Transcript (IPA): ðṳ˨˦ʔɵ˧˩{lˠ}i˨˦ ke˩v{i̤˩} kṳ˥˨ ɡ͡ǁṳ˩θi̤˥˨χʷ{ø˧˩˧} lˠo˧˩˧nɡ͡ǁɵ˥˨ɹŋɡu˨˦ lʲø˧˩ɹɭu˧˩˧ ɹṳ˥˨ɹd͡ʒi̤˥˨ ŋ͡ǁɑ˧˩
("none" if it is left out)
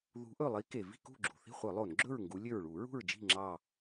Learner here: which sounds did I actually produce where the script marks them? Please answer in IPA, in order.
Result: lˠ, i̤˥˨, œ˧˩˧

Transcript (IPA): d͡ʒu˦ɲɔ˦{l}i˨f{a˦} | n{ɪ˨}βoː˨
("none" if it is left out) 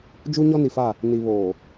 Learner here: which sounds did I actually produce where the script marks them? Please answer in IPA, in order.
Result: n, a˦˨, i˨

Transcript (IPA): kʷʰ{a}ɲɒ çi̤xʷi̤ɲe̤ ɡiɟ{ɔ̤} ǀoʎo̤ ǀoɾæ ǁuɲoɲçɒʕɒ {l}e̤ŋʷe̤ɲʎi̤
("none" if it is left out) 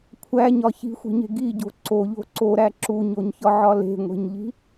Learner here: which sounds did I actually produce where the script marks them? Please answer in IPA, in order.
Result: æ, o̤, l

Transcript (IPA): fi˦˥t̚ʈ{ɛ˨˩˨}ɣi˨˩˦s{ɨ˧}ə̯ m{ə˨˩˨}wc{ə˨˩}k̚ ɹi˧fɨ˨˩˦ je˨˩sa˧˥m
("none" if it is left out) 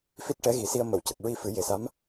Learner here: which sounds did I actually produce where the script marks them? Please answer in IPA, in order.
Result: ɛ˧˥, i˧, ə˨˩˨, ə˨˩

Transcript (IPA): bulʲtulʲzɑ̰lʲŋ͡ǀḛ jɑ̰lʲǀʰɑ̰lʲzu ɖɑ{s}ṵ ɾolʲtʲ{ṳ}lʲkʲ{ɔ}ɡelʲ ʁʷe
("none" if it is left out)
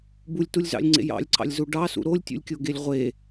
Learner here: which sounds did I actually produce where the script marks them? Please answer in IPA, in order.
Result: s, ṵ, o

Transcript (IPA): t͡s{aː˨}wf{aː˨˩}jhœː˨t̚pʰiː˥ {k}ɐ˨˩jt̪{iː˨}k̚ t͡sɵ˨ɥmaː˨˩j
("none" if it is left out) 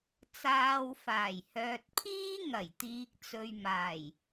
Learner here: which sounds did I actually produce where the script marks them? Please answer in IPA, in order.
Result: aː˨, aː˨˩, ŋ, iː˨

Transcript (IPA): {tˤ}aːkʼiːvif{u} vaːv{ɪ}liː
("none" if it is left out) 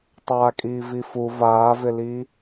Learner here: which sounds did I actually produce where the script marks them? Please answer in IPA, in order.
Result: tˤ, u, ɪ

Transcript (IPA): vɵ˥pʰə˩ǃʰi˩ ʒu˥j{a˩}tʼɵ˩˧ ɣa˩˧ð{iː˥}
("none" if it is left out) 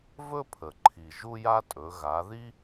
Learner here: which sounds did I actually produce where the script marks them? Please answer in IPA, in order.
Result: a˥, i˥

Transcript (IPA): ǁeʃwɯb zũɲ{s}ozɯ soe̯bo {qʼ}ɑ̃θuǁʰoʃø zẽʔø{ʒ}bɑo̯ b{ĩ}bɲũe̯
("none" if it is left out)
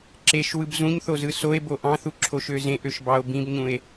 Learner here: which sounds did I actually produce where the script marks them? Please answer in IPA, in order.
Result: θ, ʔ, ʃ, ĩ

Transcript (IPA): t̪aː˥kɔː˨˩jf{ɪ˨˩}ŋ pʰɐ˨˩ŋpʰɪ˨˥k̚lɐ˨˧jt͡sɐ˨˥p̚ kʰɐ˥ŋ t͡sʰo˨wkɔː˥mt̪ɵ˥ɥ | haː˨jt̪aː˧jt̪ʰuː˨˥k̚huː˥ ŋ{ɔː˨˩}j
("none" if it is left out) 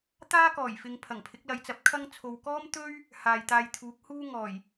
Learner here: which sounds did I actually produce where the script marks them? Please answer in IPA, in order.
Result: ɪ˨, ɔː˨˩

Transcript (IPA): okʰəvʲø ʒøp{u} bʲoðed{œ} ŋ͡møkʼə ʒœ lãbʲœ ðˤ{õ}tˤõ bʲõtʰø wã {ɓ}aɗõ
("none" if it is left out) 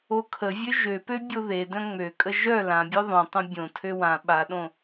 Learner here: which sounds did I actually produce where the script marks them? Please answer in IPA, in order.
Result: ø, œ̃, õ, ɓ

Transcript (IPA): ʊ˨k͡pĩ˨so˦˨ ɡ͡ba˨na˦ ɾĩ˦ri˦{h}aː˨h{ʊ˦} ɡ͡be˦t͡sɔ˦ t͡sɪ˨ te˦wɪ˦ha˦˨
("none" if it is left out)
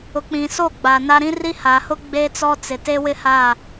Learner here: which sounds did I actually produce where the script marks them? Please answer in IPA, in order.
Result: h, ʊ˦

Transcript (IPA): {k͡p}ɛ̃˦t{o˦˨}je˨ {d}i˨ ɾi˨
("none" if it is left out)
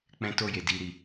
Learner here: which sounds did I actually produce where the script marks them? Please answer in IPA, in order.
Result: k͡p, o˦˨, d

